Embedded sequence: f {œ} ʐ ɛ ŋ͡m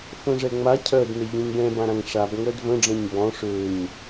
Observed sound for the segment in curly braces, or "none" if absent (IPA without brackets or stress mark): œ̃